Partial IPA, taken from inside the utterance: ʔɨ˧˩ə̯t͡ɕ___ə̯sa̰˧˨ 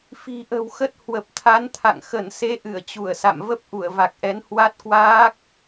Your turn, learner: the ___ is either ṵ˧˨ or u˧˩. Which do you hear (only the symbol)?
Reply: u˧˩